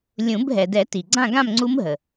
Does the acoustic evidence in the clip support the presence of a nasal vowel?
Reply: yes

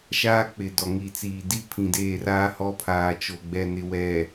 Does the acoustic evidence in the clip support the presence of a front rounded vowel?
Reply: no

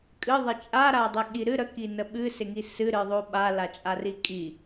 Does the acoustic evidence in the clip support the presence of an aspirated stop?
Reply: no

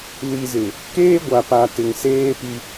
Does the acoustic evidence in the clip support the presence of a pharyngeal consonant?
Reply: no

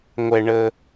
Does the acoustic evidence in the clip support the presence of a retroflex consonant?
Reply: yes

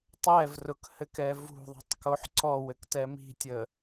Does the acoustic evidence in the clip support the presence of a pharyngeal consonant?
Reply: yes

